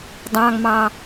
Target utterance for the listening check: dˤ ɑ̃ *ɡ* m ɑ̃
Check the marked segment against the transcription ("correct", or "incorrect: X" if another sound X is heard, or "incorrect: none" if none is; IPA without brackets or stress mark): correct